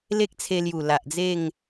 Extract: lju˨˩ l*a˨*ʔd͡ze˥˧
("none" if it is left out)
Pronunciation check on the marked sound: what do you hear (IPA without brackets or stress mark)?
a˨